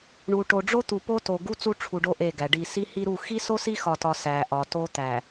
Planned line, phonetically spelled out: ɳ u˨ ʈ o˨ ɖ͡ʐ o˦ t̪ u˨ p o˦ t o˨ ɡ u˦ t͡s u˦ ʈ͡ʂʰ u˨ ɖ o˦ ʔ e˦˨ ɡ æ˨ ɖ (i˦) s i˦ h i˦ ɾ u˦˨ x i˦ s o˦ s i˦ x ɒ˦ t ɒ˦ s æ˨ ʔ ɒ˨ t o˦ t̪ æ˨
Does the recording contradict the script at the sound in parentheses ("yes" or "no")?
yes